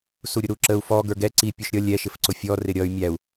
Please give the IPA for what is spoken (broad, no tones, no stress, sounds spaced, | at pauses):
s u ɾʲ ʊ ɾ u ǁ ə u̯ f ɔ ɡ ə˞ ɡ ɛ ǀ i pʲ u ʃ ɾʲ ʌ lʲ ɛ ʃ ɪ f ǀ ʊ fʲ ɔ r ɪ ɾʲ ʌ y̯ mʲ æ u̯